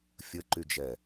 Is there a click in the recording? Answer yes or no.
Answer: yes